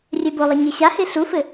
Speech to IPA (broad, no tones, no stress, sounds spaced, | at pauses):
rʲ ɛ b o lˠ ʌ ɲ e ɕ a h e ɬ u f ɘ